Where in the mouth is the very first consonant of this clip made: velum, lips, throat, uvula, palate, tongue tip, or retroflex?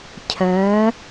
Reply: palate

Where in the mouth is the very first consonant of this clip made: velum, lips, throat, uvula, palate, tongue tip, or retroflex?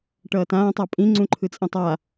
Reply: retroflex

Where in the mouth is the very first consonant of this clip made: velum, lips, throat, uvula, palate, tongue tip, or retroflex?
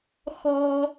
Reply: velum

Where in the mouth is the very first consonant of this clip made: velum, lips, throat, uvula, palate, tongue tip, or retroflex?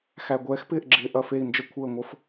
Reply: velum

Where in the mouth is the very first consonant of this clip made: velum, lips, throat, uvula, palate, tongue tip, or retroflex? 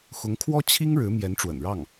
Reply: velum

